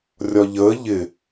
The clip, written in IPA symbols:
rʲ ɒ ʎ əː ʎ ɪ

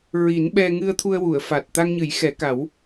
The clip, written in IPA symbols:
ɹ i˨˩˦ n ɓ ɛ˧ ŋ ɨ˧ ə̯ t̪ʰ u˧ ə̯ w u˨˩˨ ə̯ f a˨˩ t̚ t̪ a˧ ŋ ɲ ɨ˨˩˦ j x ɛ˨˩˦ k a˨˩˦ w

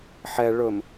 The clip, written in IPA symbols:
ħ ɛ ɭ ɵ m

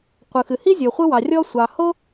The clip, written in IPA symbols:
qʷ ɯ˩ x ɨ˩ h i˥ zʲ o˩ χʷ ɯ˥ w ɑ˩ rʲ ɔ˥ sʷ ɑ˩ h o˥

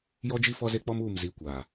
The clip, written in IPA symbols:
j ɔ˦ d͡ʒ i˦ f ɔ˦ z e˦ k͡p ɔ˦ m uː˦˨ m z i˨˦ kʷ aː˨

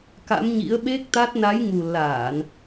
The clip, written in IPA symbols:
k a̰˧˥ m ɲ ḭ˧˥ ə̯ ɓ e˦˥ k̚ t̪ a˦˥ t̚ n a˨˦ j ŋ u˨˩ l aː˧˩˨ n

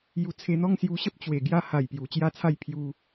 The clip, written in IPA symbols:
j u˧ t͡sʰ e˧ n̪ ɔ˦ ŋ s j u˧ ɕ ə˦ p̚ t͡ɕ w e˨˩ ɡ j a˧ h a˨˩ j p j u˨˩ t͡ɕ j a˦ t͡sʰ a˥˧ j pʰ j u˧

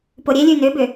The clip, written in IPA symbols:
p o ɾʲ e lʲ ʉ n ʏ b ʏ

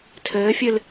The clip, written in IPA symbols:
tʰ ɘː fʲ ɨ l

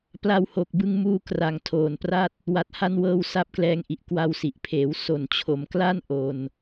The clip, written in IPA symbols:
p l a˧ w h o˨˩ k̚ b ɯ˧ ŋ m uː˧ k r a˨˩ ŋ tʰ oː˨˩ n p r a˥˩ t̚ | w a˨˩ t̚ h a˧ n w ɤː˧ w s a˦˥ p̚ k l ɛː˧ ŋ ʔ i˨˩ ʔ k w a˧ w s i˨˩ ʔ pʰ eː˩˦ w s o˨˩ n t͡ɕʰ o˩˦ m k l a˥˩ n ʔ o˧ n

